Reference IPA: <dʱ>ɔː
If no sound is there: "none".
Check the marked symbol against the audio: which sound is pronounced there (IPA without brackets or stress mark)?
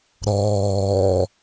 ɾ